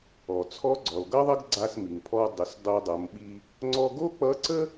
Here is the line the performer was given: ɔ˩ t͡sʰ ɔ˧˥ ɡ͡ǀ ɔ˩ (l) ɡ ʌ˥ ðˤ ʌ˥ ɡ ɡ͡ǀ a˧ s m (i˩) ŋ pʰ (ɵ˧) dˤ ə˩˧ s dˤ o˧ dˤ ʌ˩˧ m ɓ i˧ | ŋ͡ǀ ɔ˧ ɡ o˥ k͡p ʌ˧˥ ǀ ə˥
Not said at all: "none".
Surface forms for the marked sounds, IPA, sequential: l, i˩, ɔ˧

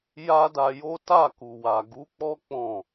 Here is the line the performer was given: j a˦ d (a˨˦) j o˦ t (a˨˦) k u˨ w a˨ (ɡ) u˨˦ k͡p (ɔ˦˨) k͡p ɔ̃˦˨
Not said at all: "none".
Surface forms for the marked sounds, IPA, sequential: a˧, a˦˨, ɡ, ɔ˦

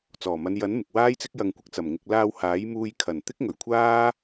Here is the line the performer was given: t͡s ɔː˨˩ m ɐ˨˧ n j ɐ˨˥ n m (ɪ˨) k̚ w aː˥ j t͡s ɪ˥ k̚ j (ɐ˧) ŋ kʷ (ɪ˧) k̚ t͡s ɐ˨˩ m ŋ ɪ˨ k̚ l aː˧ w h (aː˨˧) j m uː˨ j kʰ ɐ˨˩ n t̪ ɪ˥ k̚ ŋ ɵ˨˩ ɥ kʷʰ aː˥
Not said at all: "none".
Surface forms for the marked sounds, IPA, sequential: ɪ˨, ɐ˧, ɪ˧, aː˨˥

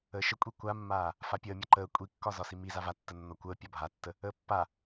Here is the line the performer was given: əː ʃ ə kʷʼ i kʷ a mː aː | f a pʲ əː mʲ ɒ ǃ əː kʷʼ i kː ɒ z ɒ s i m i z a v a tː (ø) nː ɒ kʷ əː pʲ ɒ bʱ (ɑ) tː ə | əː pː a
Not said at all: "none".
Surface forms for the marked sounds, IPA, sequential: ə, a

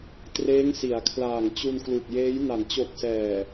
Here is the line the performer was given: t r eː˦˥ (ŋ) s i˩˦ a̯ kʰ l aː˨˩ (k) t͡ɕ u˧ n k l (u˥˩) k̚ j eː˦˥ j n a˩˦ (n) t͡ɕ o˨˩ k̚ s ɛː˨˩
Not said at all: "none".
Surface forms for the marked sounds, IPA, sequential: ŋ, ŋ, u˨˩, n

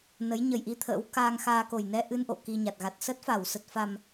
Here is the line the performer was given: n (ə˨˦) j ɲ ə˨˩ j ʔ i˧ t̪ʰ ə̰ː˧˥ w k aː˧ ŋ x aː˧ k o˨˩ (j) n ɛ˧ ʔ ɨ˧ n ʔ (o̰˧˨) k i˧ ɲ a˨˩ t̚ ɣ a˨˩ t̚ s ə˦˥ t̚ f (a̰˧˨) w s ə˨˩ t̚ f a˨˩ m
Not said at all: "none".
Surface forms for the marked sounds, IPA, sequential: ə˨˦, j, o̰˧˨, a˧˩

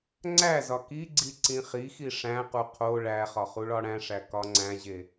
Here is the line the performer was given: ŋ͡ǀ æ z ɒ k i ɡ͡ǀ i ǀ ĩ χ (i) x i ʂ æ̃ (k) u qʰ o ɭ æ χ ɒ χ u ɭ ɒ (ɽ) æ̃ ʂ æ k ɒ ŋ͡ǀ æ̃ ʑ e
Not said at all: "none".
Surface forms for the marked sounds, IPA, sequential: i, q, ɽ

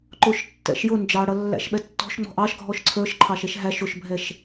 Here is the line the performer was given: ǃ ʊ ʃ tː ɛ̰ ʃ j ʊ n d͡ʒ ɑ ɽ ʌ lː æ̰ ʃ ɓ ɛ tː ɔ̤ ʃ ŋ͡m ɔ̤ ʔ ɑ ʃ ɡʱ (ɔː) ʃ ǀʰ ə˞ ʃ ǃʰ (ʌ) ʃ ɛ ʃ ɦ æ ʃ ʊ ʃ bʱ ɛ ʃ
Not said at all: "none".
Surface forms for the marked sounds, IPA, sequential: ɔ, ɑ

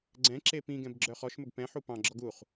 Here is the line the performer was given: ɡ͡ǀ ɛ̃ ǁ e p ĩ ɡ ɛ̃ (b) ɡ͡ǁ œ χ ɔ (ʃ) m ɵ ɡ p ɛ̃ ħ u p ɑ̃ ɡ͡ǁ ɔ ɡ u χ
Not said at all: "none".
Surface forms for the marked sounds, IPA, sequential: b, ʃ

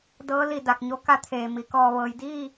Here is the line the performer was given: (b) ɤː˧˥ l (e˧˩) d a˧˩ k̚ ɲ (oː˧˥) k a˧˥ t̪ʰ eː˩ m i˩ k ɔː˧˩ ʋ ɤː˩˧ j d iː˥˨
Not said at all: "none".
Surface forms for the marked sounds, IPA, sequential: d, i˧˩, o˧˥

